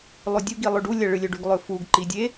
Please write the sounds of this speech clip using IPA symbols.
lˠ o dʲ u ɡ i lˠ ɵ ɖ u lʲ ɐ ɭ ɨ lʲ ɵ ɖ ʉ ɡ lˠ ɵ f u ɡ ǃ i dʲ e

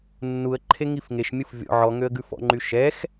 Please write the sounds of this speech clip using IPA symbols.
nː u ə̯ ǃʰ e ŋ i f ŋ e ʃ mʲ ɯ f vʲ ɔ̰ ʕ ɔ ŋ ø ə̯ ɡ ʉ f ɔ̰ ŋ͡ǃ y ʃ ɛ x

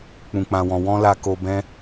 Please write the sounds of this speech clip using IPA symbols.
k͡p ũ˨ k͡p ã˨ w ɔ̃˨ w ɔ̃˧ l a˨ k o˨ b ɛ̃˧

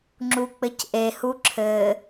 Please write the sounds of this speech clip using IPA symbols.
ŋ͡ǁ u k͡p ɘ c ʔ e h u ǁʰ ɘ

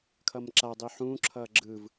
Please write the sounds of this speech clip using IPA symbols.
kʰ ʌ m ǁ a dˤ i ħ ũː ǁʰ ʌː ɡ͡ǁ ɯ v

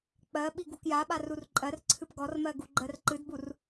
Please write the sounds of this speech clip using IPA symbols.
k͡p ɜ ɓ i ɡ u k j a ɓ a r u r ǃʼ ɜ r ǀʰ ɨ p ɡ ɔ r m ɜ ɡ u ɡ͡ǃ ɜ r ǃ ɨ d b u r

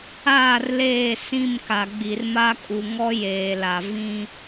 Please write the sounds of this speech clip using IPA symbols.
aː˦˨ r l eː˦˨ s ĩ˦˨ m k a˨ ɡ͡b i˨ r m a˦ kʼ u˨ ŋ ɔ˦ j eː˨ l a˨ v ĩ˦

